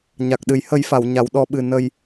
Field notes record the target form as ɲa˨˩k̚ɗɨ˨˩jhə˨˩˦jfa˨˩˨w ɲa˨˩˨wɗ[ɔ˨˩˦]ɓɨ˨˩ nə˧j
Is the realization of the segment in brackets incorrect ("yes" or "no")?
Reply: no